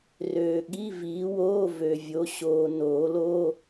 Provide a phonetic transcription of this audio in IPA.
r øː˨ ɠ i˧˥˧ v iː˨˥ w oː˧˥˧ v ø˨ vʲ o˨˥ ɕ oː˨ n oː˨˩˦ l o˧˥˧

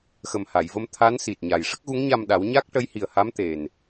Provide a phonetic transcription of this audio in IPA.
x ə˨˩ m h a˨˩˨ j v ə˧ m t̪ʰ a˧˥ n s i˨˩ t̚ ɲ a˨˩ j ʂ ə˦˥ k̚ ɣ u˧˥ ŋ ɲ a˧ m ɗ a˨˩˦ w ɲ a˦˥ k̚ ʈ ə˧˥ j h i˨˩ ə̯ h a˧˥ m t̪ e˨˩ n

